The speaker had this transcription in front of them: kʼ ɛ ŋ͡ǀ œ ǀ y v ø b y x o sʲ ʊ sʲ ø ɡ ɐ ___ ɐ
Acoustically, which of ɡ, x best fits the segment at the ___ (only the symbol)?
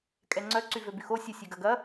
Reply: ɡ